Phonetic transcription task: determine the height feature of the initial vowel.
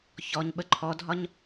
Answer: mid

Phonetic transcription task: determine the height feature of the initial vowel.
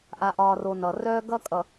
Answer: low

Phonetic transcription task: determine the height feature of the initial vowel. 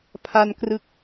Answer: low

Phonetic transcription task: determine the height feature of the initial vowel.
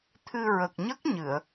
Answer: high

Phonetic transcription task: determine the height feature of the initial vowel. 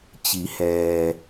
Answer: high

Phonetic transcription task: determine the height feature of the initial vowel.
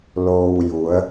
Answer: mid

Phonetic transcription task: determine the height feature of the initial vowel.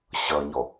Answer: mid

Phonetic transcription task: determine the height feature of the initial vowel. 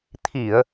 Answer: high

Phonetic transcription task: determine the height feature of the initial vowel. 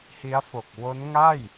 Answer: high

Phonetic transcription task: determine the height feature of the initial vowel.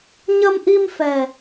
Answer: mid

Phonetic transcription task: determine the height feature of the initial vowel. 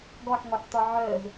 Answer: mid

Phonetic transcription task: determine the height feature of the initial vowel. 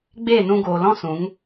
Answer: mid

